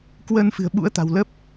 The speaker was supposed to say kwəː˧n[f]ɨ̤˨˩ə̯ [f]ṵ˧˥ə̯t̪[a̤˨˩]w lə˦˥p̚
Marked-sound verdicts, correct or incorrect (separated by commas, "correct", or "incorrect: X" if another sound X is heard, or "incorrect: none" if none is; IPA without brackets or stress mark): correct, incorrect: ɓ, correct